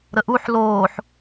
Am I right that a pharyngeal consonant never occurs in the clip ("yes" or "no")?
no